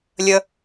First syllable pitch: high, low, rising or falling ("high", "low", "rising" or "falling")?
low